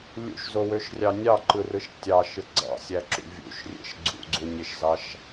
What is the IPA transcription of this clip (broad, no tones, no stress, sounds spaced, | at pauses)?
lʲ ṵ ʃ z o w ø ʃ rʲ ɑ nʲ ɑ ǃ ɯ r ɯ ʃ tʲ ɑ ʃ ɯ ɡ͡ǀ ɑ̰ sʲ æ ǁ ṵ vʲ ṵ ʃ rʲ ḛ ʃ ɡ͡ǀ ṵ ɡ͡ǀ u nʲ e ʃ z ɑ ʃ